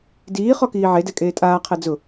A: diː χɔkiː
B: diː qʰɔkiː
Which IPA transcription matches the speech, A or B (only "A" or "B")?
A